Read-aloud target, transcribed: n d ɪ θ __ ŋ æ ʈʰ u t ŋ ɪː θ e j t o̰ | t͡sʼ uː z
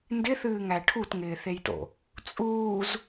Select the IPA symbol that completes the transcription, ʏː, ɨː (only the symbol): ɨː